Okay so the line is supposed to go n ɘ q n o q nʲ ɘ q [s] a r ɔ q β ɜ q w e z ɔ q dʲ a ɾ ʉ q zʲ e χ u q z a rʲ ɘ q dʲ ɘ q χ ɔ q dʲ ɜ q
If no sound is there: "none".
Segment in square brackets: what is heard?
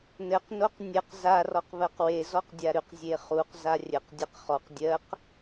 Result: z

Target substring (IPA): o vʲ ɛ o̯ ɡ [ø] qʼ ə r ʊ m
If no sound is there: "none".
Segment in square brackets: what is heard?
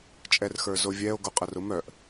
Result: u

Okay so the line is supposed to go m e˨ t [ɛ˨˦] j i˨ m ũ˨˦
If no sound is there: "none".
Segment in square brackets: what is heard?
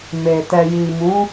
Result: ɛ˨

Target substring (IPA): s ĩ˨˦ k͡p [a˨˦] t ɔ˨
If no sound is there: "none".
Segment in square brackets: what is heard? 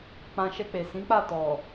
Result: a˦˨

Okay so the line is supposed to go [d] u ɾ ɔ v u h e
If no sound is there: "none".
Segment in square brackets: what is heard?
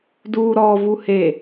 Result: d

